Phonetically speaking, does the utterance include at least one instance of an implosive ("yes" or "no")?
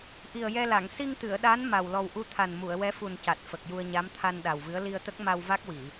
yes